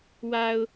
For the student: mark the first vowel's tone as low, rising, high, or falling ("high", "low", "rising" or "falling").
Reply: low